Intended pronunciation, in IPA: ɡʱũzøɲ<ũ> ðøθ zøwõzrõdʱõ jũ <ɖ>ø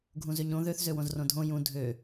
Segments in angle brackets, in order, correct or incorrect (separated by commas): incorrect, incorrect